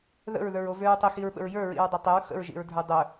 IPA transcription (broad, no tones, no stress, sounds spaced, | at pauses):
ð ə̰ ɹ ð ə˞ ɹ o v ø ɹ tˤ ə x i ɹ ɓ ə̰ ɹ j ə˞ ɹ ḭ ɹ dˤ œ tˤ ə ɹ x ə̰ ɹ ʒ ḭ ɹ dʱ ə˞ dˤ œ